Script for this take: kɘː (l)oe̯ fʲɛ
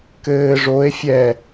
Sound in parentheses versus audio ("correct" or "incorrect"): incorrect